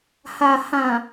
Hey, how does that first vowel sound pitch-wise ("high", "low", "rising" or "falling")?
low